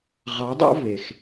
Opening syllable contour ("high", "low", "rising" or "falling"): rising